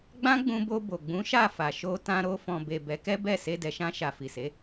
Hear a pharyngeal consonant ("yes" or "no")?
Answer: no